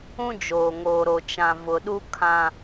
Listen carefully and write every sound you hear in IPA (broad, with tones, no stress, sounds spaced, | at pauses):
ũ˦ d͡ʒ oː˨ ŋ oː˨ ɾ o˨ t͡ʃ ã˨ v ʊ˨ ɗ u˦ kʰ ã˨